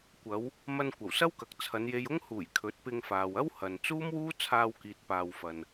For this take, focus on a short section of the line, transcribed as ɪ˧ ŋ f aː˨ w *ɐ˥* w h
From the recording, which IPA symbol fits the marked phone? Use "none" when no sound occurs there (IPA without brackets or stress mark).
ɐ˥